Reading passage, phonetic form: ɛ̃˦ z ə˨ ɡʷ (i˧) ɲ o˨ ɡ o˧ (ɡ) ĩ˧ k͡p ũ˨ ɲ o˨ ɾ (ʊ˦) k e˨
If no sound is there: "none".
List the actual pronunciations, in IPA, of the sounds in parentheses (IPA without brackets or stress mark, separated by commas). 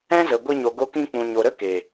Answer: i˧, k, ə˦